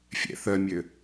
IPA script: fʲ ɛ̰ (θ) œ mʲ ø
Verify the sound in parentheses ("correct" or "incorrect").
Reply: correct